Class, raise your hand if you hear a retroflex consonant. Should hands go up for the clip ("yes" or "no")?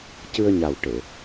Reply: yes